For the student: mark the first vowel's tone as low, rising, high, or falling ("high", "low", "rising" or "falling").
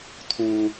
high